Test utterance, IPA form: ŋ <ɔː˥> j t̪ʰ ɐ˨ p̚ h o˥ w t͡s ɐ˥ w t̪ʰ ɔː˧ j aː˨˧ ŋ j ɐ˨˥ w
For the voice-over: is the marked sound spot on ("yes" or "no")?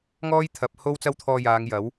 yes